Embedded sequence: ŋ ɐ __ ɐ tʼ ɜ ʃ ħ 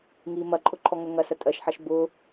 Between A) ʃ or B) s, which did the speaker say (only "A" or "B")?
B